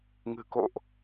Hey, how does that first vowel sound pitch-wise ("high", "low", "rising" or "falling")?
low